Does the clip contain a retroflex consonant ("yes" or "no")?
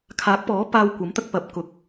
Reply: no